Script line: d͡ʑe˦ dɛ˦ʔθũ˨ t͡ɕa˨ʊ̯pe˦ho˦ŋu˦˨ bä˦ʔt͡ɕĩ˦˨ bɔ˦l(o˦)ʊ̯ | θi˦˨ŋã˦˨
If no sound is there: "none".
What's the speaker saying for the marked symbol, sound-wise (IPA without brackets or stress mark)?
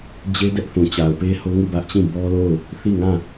o˦˨